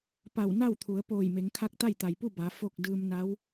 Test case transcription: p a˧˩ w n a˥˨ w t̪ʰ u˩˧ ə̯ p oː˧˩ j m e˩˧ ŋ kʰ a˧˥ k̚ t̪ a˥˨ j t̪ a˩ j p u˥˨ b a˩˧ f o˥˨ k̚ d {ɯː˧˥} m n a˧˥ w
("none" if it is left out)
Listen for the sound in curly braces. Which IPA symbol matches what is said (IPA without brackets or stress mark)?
ɯː˧